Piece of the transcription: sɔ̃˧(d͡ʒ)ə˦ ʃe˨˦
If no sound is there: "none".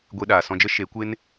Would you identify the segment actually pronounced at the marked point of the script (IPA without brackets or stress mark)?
d͡ʒ